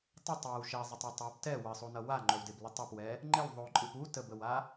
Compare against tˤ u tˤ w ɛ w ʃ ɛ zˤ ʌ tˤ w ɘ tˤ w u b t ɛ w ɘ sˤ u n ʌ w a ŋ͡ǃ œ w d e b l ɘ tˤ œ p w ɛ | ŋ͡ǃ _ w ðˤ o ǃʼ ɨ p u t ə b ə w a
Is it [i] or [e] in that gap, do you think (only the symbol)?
e